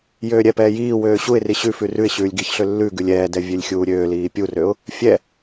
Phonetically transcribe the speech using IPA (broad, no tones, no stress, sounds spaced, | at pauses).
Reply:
j øː ɾʲ ɛ p ɛː j iː w øː ɕ u ɪ̯ r i ɕ ʉ f ʉ r ʉ ɪ̯ ɕ ʉː lʲ ɡ i ç ɬ ø lː ʉ ɡ ʉ lʲ ɛː d ɛ vʲ ø lʲ xʲ uː ɾʲ øː l iː pʲ u r ø ʊ̯ | fʲ ɛ